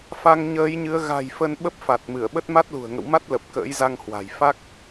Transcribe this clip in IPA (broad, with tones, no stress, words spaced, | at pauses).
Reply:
fa˧ŋɲəː˨˦jɲɨ˨˦ə̯ ɣa̤˨˩j fə˧nɓə˦˥p̚fa˨˩t̚mɨ˧˩ə̯ ɓə˦˥t̚ma˦˥t̚lṳ˨˩ə̯ ŋə̰˧˨wma˦˥t̚lə˨˩p̚ kə̰ː˧˥jza˧ŋhwa̤˨˩j fa˦˥k̚